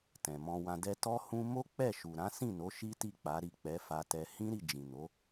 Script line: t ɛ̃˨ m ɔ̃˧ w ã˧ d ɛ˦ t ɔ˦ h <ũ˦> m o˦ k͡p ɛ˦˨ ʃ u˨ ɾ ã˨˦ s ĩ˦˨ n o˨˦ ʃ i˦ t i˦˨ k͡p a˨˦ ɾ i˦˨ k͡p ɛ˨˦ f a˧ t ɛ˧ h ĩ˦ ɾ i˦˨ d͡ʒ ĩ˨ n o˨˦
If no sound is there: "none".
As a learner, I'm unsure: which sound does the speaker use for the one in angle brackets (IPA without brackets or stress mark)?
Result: ũ˦